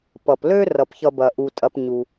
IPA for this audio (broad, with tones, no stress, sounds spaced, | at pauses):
p ʌ˩ p l ø˥ r ʌ˩ p ç ʌ˨ b ɐ˩ ʔ u˩ tʼ ɐ˨ p ɲ u˩